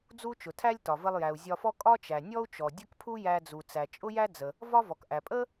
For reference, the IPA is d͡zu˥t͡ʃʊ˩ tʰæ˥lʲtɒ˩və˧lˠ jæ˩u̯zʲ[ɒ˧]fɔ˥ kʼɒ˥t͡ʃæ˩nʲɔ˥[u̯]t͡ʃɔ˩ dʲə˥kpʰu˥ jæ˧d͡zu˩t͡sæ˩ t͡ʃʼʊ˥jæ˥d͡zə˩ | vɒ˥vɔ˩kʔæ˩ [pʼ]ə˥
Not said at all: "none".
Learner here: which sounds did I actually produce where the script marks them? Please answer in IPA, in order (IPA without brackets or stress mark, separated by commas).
ɒ˧, u̯, pʼ